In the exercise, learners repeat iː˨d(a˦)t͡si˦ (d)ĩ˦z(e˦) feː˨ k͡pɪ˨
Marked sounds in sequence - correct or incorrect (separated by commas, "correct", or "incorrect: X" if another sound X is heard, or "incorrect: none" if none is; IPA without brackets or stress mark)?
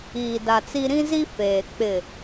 incorrect: a˨, incorrect: ɾ, incorrect: i˦